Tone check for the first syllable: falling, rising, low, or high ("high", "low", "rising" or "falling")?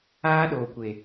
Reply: high